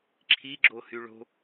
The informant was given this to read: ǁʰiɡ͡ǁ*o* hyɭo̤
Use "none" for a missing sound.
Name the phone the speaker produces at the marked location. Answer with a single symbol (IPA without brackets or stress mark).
o